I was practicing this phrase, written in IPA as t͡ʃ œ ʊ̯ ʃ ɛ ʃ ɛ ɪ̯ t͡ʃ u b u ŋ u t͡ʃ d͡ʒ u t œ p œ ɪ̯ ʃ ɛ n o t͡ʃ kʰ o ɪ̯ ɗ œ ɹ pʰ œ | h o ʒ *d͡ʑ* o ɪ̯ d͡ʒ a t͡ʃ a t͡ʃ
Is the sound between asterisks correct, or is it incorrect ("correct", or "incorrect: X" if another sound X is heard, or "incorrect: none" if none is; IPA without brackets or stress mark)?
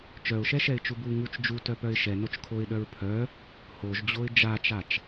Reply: correct